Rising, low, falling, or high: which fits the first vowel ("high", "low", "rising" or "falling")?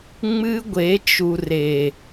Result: high